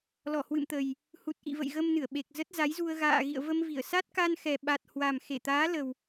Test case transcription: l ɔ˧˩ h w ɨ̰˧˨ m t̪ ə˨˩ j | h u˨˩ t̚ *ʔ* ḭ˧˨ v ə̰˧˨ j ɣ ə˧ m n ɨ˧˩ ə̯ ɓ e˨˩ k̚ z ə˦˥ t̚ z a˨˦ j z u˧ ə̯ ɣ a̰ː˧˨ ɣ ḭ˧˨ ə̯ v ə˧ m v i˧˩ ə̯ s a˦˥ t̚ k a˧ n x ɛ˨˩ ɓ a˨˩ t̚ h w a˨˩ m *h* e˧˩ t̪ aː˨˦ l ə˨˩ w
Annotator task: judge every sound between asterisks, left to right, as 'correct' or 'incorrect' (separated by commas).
correct, incorrect